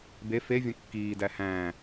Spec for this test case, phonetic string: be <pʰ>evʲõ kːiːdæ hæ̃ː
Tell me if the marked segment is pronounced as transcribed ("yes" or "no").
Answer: no